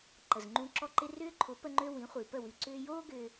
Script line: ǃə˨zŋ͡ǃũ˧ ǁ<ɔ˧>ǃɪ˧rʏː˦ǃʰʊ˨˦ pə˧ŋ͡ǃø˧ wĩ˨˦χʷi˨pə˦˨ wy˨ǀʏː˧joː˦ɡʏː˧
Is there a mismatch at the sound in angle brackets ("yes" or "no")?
no